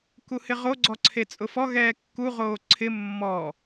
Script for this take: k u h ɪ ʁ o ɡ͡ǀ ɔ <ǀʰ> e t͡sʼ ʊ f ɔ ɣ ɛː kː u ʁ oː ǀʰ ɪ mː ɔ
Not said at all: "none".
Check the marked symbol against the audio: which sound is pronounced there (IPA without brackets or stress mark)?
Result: ǀʰ